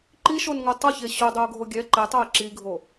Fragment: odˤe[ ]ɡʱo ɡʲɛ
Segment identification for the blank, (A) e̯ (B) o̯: B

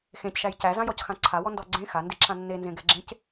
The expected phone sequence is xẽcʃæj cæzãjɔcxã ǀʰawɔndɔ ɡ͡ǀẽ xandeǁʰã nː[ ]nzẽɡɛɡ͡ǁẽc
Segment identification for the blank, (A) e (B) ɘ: A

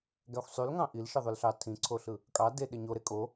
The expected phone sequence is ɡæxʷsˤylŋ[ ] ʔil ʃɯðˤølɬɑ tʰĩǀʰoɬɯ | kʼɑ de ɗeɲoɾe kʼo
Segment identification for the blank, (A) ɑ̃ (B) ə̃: A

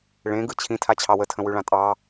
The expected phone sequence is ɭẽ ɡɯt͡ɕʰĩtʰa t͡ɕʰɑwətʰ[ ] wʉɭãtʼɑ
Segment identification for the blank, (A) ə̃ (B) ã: A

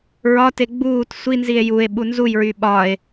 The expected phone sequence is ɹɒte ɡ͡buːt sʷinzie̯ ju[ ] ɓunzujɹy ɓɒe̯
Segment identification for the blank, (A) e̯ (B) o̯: A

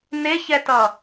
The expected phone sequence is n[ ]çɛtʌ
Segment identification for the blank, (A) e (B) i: A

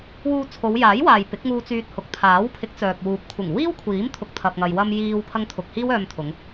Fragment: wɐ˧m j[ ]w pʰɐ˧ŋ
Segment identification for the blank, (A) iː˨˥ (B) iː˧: B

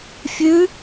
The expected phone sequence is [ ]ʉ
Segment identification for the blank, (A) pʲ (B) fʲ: B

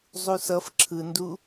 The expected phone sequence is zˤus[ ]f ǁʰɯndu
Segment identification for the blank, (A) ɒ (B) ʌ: B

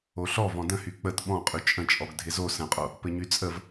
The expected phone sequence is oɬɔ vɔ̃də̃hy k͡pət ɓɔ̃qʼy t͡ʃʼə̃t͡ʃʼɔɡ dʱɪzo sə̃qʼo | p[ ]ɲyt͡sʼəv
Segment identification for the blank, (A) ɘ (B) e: A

